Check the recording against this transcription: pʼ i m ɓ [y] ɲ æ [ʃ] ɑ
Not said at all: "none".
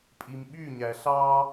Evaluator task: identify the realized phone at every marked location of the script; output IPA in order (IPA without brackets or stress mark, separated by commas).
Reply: y, ɬ